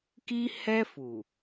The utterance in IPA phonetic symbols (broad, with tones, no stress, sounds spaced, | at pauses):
k i˦ h ɛ˦ f u˨